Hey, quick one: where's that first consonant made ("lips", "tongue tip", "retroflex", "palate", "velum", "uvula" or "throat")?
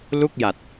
tongue tip